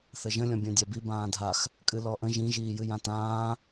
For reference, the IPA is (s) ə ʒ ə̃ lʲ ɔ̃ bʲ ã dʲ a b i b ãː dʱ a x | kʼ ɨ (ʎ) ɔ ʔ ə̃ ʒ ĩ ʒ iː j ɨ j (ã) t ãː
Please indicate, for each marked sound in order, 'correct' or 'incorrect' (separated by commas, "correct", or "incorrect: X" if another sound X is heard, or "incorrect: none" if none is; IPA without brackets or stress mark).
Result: incorrect: θ, incorrect: l, correct